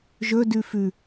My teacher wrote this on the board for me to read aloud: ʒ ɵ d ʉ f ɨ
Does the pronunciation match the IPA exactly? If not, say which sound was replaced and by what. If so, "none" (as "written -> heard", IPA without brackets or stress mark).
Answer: ɨ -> ʉ